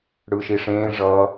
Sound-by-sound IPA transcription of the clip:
ɽɯːʃiʂẽː ʐʌ

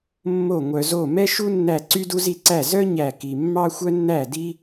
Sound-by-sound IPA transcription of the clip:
mːo˥˨ŋʷœ˧zo˥˨ mɛ˥ʃu˥ nːæ˥˨ ǀy˥du˥zi˥˨ǀæ˥˨ zœ˥ ɲæ˥˨ki˧ mːɑ˥ xʷœ˥nːæ˥˨di˥

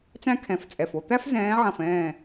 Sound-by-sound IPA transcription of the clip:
t͡sæ̃˥kʰɛ̃˧˩ft͡sʼɛ˧˩f o˥˨t̪æ˥fzɛ̃ː˨˥ʕɐ̃˧˩f ɛ̃ː˥˨

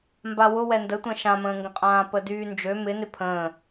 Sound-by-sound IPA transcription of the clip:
mbawʊ wɛndətʷɛ̃ ʃãmə̃ːŋɡə̃qʼãː pədyːnd͡ʒø mɪnɪ pʰə̃ː

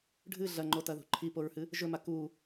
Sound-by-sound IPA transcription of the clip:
ɖʱɨ ɮɐŋ͡ǃotɐðṳ ǃʰipoɹhɨ | ʒɵma ku

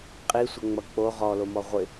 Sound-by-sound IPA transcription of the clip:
qʼi sʷəŋ͡mʌk͡po ʁɔlomɔ ʁʷɪ

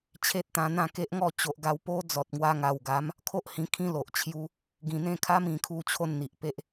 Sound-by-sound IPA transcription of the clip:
t͡ɕʰe˦t̚t̪ã˧ n̪ã˥˧ke˦ʔŋɔ˥˧ t͡ɕo˨ʔɡa˧w po˦d͡zɔ˨t̚ŋwa˧ ŋa˨˩wɡa˨˦m | kʰo˦ʔhĩ˧kʰĩ˦lo˨ʔ t͡ɕʰju˧ | ɡĩ˨˩n̪ẽ˥˧kʰa˦m ĩ˧kʰu˦ t͡ɕʰo˥˧nn̪i˨ʔpe˦ʔ

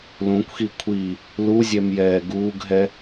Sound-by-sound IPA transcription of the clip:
lũkʷxi kʷʰi | luzʲɛm jɛːɡuːɡɦɛ

